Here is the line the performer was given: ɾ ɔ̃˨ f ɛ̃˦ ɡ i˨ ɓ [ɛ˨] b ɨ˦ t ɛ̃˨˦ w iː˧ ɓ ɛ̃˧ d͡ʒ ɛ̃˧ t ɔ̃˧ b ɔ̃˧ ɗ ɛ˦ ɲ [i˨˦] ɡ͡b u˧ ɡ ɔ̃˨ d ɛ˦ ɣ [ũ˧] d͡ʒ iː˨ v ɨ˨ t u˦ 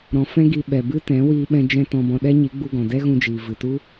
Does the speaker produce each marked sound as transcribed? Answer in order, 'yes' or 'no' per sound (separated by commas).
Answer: yes, yes, yes